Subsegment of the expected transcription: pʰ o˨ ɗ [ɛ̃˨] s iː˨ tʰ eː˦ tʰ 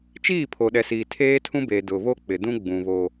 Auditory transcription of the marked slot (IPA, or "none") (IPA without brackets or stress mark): ɛ˨